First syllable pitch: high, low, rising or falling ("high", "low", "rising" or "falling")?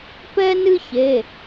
high